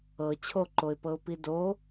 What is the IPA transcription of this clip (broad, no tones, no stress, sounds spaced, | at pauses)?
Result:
ɤ t͡ɕʰ o ǃ o ɪ̯ p ɤ ʊ̯ p i d o